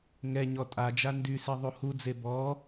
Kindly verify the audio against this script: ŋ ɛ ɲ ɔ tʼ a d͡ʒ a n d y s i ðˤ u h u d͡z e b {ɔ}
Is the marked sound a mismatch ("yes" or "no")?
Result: no